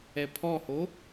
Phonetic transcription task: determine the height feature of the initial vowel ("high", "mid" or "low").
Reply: mid